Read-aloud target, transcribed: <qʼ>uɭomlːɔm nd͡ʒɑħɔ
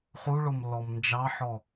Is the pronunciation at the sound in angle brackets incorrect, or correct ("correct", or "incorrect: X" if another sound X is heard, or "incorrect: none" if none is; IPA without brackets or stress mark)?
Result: incorrect: χ